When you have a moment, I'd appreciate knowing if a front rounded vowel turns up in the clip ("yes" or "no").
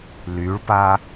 yes